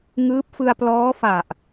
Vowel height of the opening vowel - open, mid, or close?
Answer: close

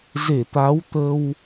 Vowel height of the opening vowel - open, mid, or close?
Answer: mid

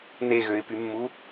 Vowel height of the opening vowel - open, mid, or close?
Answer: mid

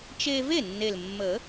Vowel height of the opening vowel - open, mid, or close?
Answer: mid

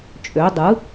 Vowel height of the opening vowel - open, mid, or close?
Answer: mid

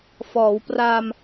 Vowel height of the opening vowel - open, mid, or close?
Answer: mid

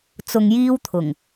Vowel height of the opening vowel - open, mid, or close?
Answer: close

